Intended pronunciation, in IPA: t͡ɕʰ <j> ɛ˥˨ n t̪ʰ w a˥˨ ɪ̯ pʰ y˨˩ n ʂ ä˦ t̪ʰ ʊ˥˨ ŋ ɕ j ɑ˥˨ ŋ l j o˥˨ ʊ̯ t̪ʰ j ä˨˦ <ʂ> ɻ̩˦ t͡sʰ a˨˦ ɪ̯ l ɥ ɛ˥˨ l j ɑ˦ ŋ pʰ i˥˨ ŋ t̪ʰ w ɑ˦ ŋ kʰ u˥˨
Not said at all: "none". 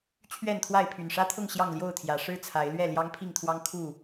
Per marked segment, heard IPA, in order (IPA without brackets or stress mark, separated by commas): ɥ, ʂ